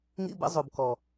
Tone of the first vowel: high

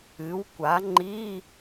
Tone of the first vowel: rising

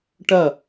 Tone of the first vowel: falling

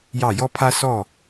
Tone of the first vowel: falling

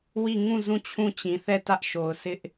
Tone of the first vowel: falling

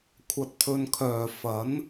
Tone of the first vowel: low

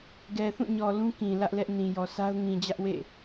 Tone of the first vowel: low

